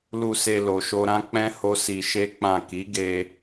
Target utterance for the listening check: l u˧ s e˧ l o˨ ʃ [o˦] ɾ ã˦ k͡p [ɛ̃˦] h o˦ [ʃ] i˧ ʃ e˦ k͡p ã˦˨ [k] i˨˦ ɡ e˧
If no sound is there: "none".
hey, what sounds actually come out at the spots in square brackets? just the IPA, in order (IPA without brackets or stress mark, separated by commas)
o˧, ɛ̃˦, s, k